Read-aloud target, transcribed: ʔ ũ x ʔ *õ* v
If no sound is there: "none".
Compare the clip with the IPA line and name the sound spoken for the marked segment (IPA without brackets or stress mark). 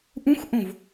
õ